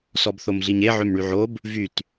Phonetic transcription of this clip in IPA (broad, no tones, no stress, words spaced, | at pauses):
sɔbθomɮiɲe ʕømɳyʕob | vyt